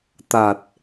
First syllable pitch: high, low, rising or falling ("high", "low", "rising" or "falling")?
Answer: low